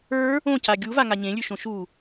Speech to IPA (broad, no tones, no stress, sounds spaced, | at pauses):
ə˞ | õ c a ɡʲ u v a ŋ a ɲ ẽ lʲ ʉ ʃ õ ʃ u